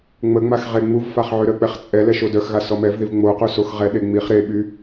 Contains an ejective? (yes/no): yes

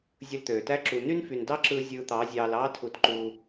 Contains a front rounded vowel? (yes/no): yes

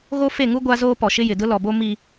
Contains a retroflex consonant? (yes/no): no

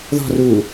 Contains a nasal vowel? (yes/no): no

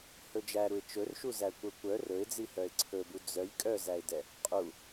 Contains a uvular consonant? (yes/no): yes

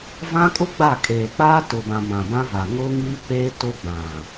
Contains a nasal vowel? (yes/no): yes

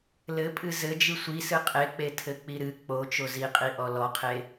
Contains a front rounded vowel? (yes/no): no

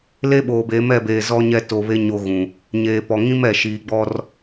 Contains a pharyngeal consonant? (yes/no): no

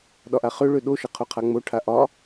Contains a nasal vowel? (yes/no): no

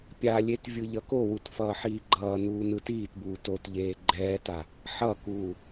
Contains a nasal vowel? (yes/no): no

